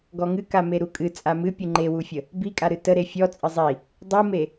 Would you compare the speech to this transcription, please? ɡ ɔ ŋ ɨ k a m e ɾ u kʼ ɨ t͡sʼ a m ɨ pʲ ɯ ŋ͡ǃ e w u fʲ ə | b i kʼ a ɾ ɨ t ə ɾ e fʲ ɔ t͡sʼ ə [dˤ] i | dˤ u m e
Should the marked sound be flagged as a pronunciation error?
yes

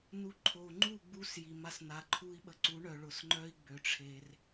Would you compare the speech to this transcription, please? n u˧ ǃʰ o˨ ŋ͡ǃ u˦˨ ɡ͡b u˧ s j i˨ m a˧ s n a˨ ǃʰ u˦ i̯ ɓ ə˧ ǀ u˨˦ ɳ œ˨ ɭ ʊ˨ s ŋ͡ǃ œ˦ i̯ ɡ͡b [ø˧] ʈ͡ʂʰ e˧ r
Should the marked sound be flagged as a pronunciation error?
no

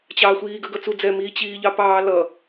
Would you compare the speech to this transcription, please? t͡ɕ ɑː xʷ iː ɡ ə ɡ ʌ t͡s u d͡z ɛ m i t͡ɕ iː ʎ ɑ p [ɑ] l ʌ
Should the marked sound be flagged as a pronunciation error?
yes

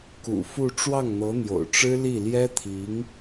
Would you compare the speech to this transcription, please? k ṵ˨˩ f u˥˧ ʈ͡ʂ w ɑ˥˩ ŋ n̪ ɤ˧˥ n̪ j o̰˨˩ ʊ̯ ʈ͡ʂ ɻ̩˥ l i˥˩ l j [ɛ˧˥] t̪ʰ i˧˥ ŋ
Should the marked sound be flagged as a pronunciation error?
yes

